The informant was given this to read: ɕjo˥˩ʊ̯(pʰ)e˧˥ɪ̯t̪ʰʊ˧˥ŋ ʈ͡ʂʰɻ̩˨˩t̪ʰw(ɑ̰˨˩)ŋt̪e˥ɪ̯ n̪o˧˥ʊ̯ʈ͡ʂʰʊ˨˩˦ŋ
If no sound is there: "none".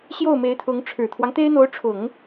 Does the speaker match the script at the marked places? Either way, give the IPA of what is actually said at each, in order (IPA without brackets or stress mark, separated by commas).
m, ɑ˦